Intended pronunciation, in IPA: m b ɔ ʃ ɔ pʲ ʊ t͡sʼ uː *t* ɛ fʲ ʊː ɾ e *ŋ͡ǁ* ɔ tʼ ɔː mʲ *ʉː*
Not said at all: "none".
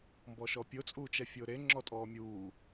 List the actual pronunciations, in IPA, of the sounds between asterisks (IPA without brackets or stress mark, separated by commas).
t͡ʃ, ŋ͡ǁ, uː